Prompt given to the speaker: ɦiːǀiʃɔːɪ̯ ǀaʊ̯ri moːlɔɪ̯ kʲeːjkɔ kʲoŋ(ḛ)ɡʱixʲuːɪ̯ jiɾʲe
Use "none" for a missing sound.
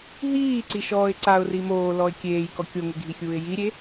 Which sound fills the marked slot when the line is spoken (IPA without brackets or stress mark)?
e